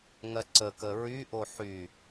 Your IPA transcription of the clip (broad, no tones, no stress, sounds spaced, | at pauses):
ŋ ɜ ǀ ə k ə ɹ y ʔ o ħ y